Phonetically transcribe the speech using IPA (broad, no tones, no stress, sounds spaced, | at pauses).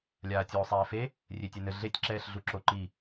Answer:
lʲ aː tʲ oː sˤ ɛː f e | rʲ e tʲ ɛ n ɘ ɮ e tʲ ǁ ɛː ɬ ɮ u ǁ o ǃ i